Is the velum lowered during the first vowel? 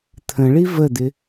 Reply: yes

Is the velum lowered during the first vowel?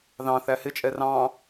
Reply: yes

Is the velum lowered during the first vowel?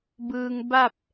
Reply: no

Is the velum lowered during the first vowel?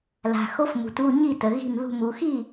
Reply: no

